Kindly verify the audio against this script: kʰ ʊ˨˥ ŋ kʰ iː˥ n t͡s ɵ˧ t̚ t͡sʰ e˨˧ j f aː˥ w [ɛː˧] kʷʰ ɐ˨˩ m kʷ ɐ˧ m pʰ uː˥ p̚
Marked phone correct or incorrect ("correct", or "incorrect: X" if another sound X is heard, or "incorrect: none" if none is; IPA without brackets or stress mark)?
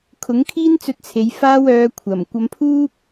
incorrect: œː˧